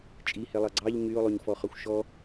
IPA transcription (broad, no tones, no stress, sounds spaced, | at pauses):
t͡ʃʼ i h e lˠ ɑ ɡ͡ǀ ɑ ʎ ɲ y ʊ̯ lˠ o ɲ f ɔ χ ɒ xʷ ʃ ɔ